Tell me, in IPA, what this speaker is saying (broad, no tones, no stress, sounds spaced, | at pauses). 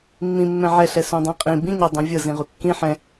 mː ĩ mː ɛ̃ ʕ ɛ ɬ ɛ s ũ dˤ ɛ̃ qʼ ĩ b ĩ ɲ ɤ dˤ ũ vʲ ɤ z ĩ ʁ u kː ĩ ħ ɛ̃